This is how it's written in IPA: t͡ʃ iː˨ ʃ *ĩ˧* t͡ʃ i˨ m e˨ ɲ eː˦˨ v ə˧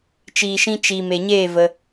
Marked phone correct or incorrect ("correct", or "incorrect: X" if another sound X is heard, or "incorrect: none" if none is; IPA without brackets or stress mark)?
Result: correct